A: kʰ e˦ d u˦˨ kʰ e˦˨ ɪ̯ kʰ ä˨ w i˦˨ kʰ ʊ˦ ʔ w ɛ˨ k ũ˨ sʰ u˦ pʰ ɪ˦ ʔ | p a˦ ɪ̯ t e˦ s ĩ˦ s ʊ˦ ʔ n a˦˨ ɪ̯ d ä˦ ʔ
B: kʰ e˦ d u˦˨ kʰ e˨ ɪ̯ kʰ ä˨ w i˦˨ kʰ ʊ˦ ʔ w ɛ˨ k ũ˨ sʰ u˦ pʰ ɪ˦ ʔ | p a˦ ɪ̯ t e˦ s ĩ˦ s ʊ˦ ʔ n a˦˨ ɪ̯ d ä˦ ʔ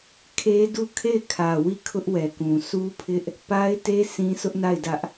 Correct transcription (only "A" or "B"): A